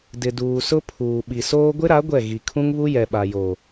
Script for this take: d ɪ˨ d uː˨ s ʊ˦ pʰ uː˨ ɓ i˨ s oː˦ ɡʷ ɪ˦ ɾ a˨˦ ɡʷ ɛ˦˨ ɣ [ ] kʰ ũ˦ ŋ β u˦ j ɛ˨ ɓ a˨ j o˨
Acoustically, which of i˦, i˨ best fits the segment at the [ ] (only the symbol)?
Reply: i˨